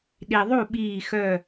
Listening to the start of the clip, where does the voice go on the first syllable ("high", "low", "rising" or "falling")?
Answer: low